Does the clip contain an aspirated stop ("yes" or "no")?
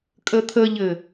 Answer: yes